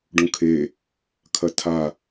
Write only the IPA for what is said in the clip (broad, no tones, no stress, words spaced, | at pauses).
ɖũkʰe | kʰɐtʰa